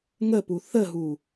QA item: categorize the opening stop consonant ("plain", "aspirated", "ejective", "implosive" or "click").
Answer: plain